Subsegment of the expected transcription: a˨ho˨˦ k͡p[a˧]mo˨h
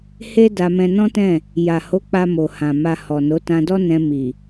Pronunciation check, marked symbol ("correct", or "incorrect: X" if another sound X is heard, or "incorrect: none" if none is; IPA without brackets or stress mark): correct